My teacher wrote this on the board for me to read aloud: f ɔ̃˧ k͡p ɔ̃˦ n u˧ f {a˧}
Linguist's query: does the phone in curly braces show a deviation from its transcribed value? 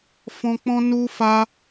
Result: no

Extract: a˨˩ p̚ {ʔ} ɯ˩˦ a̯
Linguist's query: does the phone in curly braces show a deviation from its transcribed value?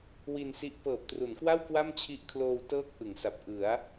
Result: no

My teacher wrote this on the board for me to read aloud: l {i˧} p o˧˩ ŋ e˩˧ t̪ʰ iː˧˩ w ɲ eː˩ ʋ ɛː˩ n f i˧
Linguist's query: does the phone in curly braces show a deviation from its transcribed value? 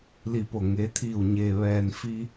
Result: yes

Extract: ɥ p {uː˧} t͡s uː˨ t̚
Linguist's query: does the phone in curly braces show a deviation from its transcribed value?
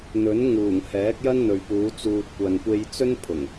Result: yes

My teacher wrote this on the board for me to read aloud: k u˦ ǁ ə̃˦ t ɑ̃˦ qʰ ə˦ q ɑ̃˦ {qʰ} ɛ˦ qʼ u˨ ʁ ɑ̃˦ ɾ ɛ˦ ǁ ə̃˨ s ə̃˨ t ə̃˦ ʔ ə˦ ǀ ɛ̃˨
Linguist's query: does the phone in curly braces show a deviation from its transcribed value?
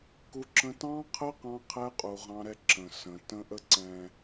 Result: no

